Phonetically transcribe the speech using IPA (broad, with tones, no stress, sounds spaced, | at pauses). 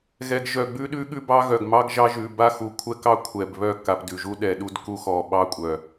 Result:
ɣ ɛ˨ ɡ ʒ œ˨ ɡ͡b ʉ˦ ɗ ʉ˦ ɠ ʉ˦ b ɑ˦ ɣ œ˨ ɡ m ɑ˦ ɡ ʒ ɑ˦ ʒ ʉ˨ b a˦ x u˨ kʷʰ ɛ˦ k ɑ˦ kʷʰ ɛ˨ b β œ˦ k a˨ p d ʉ˨ ʒ u˦ ɗ ɛ˨ ɗ u˦ d k u˦ x ɔ˨ ɓ ɑ˦ kʷʼ œ˨